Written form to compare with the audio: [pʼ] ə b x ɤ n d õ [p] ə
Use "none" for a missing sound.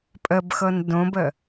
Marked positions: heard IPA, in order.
pʼ, b

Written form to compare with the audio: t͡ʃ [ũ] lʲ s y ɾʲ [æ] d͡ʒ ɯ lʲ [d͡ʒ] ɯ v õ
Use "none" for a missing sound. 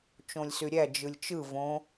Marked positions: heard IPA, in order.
õ, æ, t͡ʃ

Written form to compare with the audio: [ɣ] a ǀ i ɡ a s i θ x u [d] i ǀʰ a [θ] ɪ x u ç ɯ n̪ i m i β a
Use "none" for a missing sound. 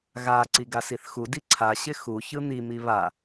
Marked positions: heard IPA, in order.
ɣ, d, ɕ

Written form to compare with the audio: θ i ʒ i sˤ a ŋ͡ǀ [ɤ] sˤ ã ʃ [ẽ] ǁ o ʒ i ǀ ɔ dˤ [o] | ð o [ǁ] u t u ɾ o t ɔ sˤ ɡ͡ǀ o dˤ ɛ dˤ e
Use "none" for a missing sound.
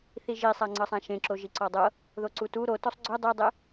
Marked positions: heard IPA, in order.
ɤ, ẽ, ɤ, ǀ

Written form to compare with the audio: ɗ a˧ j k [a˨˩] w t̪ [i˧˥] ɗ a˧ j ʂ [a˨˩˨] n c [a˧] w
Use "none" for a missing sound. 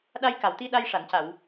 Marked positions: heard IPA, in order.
a˨˩, i˧, a˨˩˨, a˨˩˨

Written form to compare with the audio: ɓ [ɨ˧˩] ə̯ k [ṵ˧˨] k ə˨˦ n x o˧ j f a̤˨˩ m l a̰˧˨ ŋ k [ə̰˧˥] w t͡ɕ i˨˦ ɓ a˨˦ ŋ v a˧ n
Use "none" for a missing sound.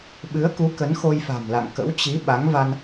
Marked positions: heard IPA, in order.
ɨ˨˦, u˨˦, ə̰˧˥

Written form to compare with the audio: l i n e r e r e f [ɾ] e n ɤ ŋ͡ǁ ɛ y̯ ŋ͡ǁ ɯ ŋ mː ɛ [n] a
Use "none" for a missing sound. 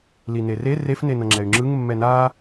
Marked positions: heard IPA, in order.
n, n

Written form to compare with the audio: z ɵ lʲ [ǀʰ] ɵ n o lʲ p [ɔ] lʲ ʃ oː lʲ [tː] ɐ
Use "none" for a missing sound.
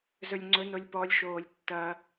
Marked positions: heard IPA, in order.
ŋ͡ǀ, ɔ, tː

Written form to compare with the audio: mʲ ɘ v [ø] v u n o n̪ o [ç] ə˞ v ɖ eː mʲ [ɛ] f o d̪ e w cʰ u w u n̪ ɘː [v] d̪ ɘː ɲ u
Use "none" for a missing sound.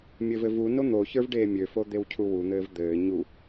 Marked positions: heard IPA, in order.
ɘ, ç, ø, v

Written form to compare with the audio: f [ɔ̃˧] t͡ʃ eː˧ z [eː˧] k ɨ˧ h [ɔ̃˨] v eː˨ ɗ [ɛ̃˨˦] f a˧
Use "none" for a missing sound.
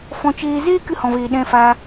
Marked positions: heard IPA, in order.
ɔ̃˧, eː˦, ɔ̃˨, ɛ̃˧

